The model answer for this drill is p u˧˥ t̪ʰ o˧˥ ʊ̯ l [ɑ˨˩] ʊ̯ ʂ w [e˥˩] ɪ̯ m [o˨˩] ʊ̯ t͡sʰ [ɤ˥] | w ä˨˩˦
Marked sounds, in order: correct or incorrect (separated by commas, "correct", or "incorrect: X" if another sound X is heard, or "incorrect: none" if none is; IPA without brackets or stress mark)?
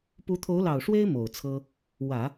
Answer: correct, incorrect: e˥, correct, correct